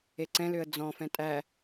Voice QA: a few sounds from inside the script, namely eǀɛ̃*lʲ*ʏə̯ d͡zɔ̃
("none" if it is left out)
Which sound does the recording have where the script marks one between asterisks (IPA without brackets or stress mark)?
l